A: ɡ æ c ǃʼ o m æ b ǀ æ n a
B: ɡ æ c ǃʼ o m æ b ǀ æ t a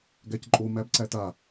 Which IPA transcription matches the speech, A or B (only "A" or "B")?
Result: B